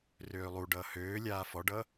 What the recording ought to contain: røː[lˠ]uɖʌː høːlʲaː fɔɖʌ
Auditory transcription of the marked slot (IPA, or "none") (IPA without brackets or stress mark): lˠ